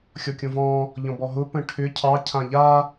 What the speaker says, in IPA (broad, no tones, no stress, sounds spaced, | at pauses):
xʲ ɔ kʲ õ v ɔ̃ | ʎ ɔ̃ b ɔ ɦ ʊ p ə̃ ʈʰ ʏ cʰ ɑ cʰ ã ʎ a